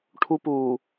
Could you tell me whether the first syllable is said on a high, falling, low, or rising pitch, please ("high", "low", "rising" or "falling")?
high